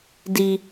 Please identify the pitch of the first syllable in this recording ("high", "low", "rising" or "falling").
high